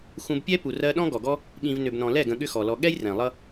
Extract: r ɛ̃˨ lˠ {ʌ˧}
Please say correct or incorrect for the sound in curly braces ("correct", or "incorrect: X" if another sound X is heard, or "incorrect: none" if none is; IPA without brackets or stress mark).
incorrect: ʌ˦